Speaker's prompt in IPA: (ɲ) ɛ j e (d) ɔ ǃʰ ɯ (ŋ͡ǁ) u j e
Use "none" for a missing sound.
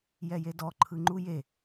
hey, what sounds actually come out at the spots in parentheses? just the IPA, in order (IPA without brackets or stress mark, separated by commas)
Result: j, d, ŋ͡ǃ